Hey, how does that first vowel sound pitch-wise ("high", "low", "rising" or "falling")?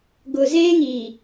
low